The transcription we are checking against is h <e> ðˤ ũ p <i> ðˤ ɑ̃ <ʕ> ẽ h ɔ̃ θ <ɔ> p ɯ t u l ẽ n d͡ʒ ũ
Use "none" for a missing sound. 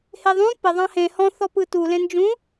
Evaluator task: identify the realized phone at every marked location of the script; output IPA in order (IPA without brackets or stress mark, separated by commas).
e, ɪ, h, ɔ